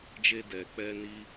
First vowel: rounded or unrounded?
unrounded